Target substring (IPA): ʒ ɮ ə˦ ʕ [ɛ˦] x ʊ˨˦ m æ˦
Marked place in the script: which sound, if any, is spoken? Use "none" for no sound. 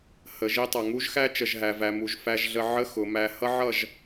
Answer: ə˦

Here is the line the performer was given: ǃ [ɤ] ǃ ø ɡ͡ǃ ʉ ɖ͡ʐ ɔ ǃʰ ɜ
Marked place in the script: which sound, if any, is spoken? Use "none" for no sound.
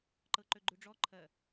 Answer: ɤ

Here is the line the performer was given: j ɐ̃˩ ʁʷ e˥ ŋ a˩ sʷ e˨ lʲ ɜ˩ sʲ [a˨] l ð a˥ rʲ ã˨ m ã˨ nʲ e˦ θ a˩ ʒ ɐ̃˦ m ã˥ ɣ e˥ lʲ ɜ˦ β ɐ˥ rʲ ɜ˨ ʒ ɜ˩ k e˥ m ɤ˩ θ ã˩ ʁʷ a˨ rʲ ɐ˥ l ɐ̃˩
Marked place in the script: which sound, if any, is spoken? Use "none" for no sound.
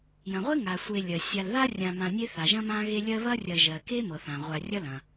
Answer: a˨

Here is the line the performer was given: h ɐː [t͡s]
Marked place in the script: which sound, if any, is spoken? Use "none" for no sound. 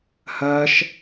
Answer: ʃ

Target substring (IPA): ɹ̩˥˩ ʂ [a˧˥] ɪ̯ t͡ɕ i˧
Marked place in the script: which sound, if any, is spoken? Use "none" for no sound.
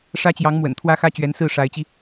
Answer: a˧˥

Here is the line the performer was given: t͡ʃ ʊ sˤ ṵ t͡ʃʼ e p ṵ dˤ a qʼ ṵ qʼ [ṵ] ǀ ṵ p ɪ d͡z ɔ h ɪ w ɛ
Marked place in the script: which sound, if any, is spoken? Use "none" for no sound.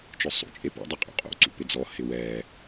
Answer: o̰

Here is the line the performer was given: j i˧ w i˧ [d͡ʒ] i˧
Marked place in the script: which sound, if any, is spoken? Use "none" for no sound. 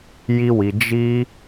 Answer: d͡ʒ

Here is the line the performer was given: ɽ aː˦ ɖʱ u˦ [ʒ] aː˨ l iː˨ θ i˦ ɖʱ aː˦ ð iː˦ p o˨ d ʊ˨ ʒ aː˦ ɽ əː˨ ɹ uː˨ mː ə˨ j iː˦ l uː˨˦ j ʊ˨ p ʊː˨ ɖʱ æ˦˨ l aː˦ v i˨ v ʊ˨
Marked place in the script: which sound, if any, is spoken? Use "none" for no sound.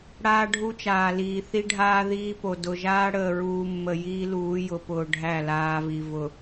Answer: t͡ʃ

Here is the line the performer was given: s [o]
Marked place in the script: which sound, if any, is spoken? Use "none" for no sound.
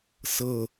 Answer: ɤ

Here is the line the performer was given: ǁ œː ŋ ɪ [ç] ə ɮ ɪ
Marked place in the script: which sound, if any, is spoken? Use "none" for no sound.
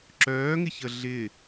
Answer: ç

